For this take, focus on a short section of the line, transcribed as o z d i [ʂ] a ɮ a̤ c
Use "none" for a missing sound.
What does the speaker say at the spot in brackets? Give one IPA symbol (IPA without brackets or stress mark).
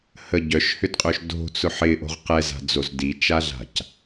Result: t͡ʃ